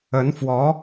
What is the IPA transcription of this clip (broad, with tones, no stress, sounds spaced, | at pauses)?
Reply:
ə˧˥ n f w ɔ˧˥